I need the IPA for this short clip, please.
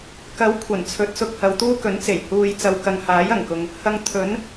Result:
k ɐ˨˥ w kʷʰ ɐ˨˩ n t͡sʰ ɵ˨˥ t̚ s ʊ˧ k̚ h ɐ˨˧ w t̪ uː˥ k ɵ˨˥ n t͡s e˨˩ j h uː˨ j t͡s ɐ˨ w k ɐ˨ ŋ h aː˨˥ j ɐ˨˩ ŋ k ʊ˨ ŋ | h ɐ˧ ŋ t̪ʰ ɵ˨˥ n

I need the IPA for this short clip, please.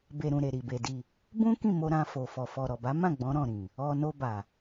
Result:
b e˨ ɾ ũ˨ ɾ e˨ ɾ i˨ b e˨ d i˨ | b ũ˦ k ĩ˦˨ m o˧ ɾ ã˧ f o˨ f ɔ˨ f ɔ˨ ɾ ɔ˨ b a˨˦ m ã˦˨ ɡ͡b ɔ̃˨˦ ɾ ɔ̃˦˨ ɾ ĩ˨ | ɔ˧ n o˧ b a˨

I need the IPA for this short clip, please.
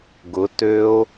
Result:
ɡ ʊ t ø o̯

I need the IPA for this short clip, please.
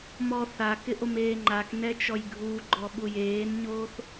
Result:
m ɔ θ a k ɪ ʔ o m eː ŋ͡ǃ a k n ɛ t͡ʃ ɔ j ɡʱ u ɡ͡ǃ ɔ ɓ u j eː n ɲ oː θ

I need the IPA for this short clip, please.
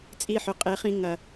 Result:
t͡sʼ i˦˨ ħ ɵ˨ qʼ e˨˦ χ ĩ˧ ŋ ɐ˨

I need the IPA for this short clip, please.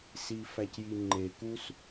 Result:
s i˨ f æ˨ c j i˨ ŋ͡ǃ e˨ k u˦ s

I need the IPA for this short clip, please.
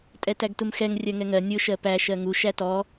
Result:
tʼ ɛ t æ ɡ t u m x ɛ ŋ rʲ ɜ ŋ ɛ ŋ ɜ nʲ ʊ ʃ ɜ p æ ʃ ɜ ŋ u ʃ æ t ɔ

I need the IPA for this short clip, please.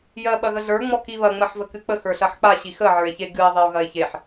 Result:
j ɜ ɓ ɐ ɣ ə ɮ ə˞ ŋ͡m ɔ k i β ɐ ŋ͡m ɜ ħ v ə k ɨ k͡p ə x ə˞ ɬ ɐ ħ k͡p a ɕ i x ə ʕ ə˞ e̯ ç e ɡ ɨ e̯ ðˤ e o̯ ɣ ɐ e̯ ç e ħ

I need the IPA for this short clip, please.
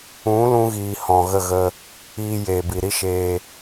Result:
ũ˨˦ l ũ˧ ɣ iː˨ h ɔ̃˨ ɣ ə˦˨ ɣ ə˧ | iː˧ j e˨ b i˨ ɾ i˦ ʃ eː˧

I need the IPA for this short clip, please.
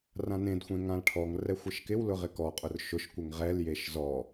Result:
r ã n ẽ d xʷ ẽ ŋ ã l ʈʰ ɔ ŋ r ɛ xʷ ɪ ʃ k ɪ w l ʊ ʁ ɪ k ɔ qʼ ʊ r ʃ ʊ ʃ kʷ ɪ ŋ ʁ ɛ l j e ʃ z ɔ

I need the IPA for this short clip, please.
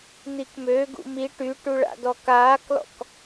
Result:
n̪ i k m ø ɡ ṵ m i ʈ y ʈ u ɭ a̰ d ɔ k aː k l ɔ̰ k

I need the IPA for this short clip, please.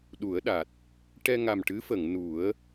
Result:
ɗ u˨˩˦ ə̯ ɗ a˨˩ t̚ | ʈ ɛ˧ ŋ a˨˩ m ʈ ɨ˧˥ f ə˨˩˨ ŋ n u˨˩˦ ə̯

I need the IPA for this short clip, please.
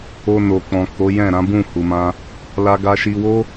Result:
o˧ n o˨ k͡p ɔ̃˨ k o˨˦ j ɛ̃˦˨ ɾ ã˨˦ b ũ˦˨ h u˨ m ã˧ | l a˧ ɡ a˧ ʃ i˧ w o˦

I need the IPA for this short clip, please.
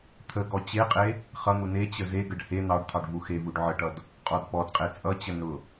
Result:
t̪ʰ ə ɡ ɔ t͡ɕ e qʼ e | χ ʌ n̪ u n e t͡ɕ ə z e ɡ ə ɖ h e n̪ ɑ ɖ t̪ʰ ɑ ɖ v u x e v u ɖ ʕ ə ʈ ʌ d | qʼ ɔ d p ɔ d qʼ e t͡sʼ ʌ t͡ɕ ə n ʊ

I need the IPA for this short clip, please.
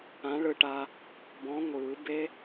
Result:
ã˨˥ ɭ ɯ˧ ʈ a˧ | b ɔ̃˨˥ ŋʷ ɯː˨˩˦ b e˦˥

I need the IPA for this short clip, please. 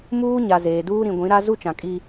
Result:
m uː˦ ɲ a˨ z eː˨ d uː˦ ɾ ĩ˨ ɡʷ ĩ˨˦ ɾ a˦ z u˦ t͡ʃ ã˨ kʼ i˦

